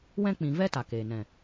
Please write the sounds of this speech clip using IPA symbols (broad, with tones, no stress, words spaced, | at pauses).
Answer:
wɛ̃˧k͡pĩ˨ vɛ˦ta˨ keː˨ nɛ̃˨